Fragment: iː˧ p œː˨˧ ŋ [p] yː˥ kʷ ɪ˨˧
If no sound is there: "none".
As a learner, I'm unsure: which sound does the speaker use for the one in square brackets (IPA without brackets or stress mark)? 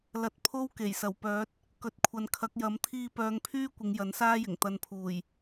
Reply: pʰ